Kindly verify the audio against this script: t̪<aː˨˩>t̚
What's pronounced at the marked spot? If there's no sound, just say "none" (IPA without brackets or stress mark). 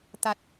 a˨˩